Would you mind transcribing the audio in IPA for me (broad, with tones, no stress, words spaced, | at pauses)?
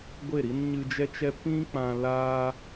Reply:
ɡʷe˦˨ɾi˦n ɲɨ˧d͡ʒɛ˦t͡ʃɛ˦ pĩ˦k͡pã˧ laː˦